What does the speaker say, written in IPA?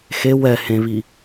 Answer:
x e w ɛ h ẽ β i

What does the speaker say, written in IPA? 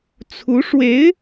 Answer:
t͡sʰ u˧˥ ʂ w e˧˥ ɪ̯

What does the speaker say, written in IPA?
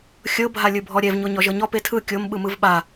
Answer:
xʲ ɤ bʱ a lʲ ɯ bʱ ɔ ɾʲ ɛ v ɲ o ɲ ɔ ʒ ɤ ɲ ɔ p e tʰ ɯ kʲ o m ɓ ɯ m ɯ v ɓ a

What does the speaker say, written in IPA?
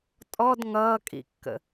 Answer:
tʼ ɔ d ŋ ʌː kʼ ḭ kː ə̰

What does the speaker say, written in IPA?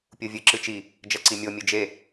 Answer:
pʲ u vʲ ɨ ǁ ɨ t͡ʃ i | d͡ʒ ɐ ǀ i mʲ o mʲ ɨ d͡ʒ e

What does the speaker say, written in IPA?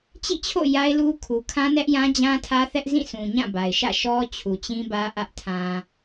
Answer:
t͡ɕ ḭ˦˨ t͡ɕʰ o̰˦˨ j a˦ ɪ̯ l u˦ kʰ u˨ kʰ ã˦ n ɛ˦ ʔ j ã˦ d͡ʑ ã˦ tʰ ä˦ θ ɛ˦ ʔ z ĩ˦˨ s ũ˨ ɲ ã˦˨ b a˨ ɪ̯ ʃ ä̰˦˨ ʃ ɔ˦ t͡ɕʰ u˨ t͡ɕ ĩ˦ b ä˦ ʔ ä˦ ʔ tʰ ã˨

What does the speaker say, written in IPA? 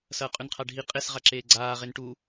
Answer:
s ɐː qʼ ʉ n qʰ a ɖʱ i qʼ e s ʁ a ǁ eː ɡ͡ǀ aː ʁ e n ʈ u

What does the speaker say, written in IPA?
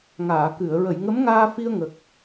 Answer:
ŋ aː˨˩˨ k ɨ˨˩˨ ə̯ ɹ ə˨˩˨ j ŋ ə˧˥ m ŋ aː˧ f i˧ ə̯ ŋ ə˨˩ k̚

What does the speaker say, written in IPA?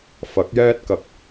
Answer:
f ɐ˨˥ k̚ j ɛː˥ t̚ k ɐ˨ k̚

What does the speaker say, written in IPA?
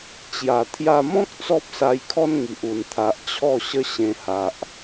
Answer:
t͡ɕ j a˨˩ t̪ʰ j a˧ m ɔ̃˦ k̚ t͡s ɔ˦ p̚ s a˧ j kʰ ɔ˦ n ŋ i˨ ʔ u˨˩ n t̪ʰ a˨ ʔ t͡ɕʰ ɔ˥˧ ɕ ə˦ ɕ ẽ˧ h a˨ ʔ

